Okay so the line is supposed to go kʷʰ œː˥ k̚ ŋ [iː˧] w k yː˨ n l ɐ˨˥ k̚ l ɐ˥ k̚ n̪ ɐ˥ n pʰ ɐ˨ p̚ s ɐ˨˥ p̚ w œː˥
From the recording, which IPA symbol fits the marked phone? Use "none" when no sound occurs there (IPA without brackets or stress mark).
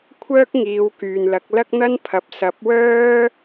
iː˨˧